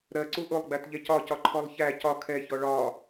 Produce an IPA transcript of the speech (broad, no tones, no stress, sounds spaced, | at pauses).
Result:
ɾ ɜ ǀ u ʔ ʊ lˠ ɡ͡b æ t ʎ ɛ c ɒ c ɒ ǃʰ ɔ lˠ ç æ c ɒ kʰ ɛ ç ɔ ɭ ɒ